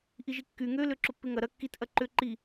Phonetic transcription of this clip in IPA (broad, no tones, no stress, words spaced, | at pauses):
ʔiʒikːy ŋø løǁʊpːɪŋɐ ɾɐ kːit ʔɐǃʏ ǃi